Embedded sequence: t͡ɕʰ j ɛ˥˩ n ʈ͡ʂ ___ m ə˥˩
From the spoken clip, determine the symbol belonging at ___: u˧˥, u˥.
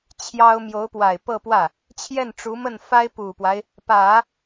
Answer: u˧˥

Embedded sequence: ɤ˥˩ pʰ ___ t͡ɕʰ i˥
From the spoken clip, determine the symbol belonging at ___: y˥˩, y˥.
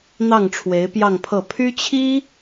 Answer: y˥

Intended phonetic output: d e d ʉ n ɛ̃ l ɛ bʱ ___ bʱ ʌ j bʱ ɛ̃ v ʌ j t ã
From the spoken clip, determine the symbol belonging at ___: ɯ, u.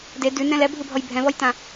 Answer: ɯ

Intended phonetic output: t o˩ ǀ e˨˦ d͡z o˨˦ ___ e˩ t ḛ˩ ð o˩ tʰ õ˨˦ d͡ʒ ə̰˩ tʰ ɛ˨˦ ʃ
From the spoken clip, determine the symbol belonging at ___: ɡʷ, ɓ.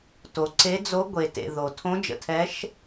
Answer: ɡʷ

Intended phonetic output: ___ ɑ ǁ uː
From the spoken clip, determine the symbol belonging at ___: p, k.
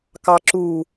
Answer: k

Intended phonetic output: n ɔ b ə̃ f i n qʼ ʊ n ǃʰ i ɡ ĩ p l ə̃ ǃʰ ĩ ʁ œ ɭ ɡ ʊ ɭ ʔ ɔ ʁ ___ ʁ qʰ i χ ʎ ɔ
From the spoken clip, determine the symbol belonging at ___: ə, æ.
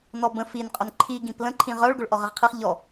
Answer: ə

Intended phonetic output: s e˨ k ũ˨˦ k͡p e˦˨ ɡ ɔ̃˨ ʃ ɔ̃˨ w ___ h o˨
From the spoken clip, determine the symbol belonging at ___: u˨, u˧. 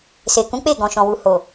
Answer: u˨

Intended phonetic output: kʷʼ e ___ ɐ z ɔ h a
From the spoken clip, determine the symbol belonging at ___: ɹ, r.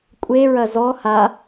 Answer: ɹ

